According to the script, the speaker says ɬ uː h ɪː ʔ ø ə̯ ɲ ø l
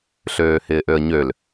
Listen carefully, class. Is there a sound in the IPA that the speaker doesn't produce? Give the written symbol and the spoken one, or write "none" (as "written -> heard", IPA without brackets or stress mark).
uː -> øː